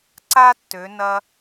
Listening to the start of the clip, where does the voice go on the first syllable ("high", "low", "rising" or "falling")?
high